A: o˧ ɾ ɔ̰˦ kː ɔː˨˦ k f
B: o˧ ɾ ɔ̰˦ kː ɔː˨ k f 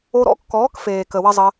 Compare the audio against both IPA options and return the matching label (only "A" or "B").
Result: A